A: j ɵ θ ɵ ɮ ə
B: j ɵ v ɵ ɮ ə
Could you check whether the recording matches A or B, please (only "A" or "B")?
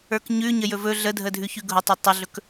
B